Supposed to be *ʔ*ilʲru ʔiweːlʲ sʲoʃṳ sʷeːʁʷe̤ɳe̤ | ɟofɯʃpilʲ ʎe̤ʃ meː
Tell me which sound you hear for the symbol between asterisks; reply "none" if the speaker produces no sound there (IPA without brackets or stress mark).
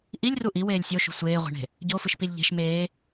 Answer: ʔ